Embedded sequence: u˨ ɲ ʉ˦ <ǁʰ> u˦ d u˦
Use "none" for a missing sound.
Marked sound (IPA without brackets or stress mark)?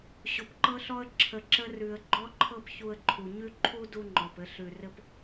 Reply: ǃʰ